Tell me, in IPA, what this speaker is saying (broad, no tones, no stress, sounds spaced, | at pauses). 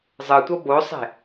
zˤ ɯ tʷ ʌ b o sˤ e̤